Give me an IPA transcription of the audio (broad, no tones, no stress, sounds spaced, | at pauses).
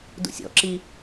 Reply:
d ṵ sʲ ɔ̰ ǁ i